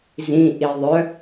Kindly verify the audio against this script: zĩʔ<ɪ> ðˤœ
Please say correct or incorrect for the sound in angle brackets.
incorrect